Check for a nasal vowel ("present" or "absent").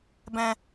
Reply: present